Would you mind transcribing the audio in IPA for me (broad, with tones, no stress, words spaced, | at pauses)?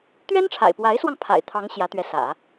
t̪ɥɛ˥nʈ͡ʂʰa̰˨˩ɪ̯pwa˧˥ɪ̯swɑ˧ŋ pʰa̰˨˩ɪ̯t̪ʰɑ˧˥ŋ ɕjä˧˥t̪ɥɛ˧˥sä̰˨˩˦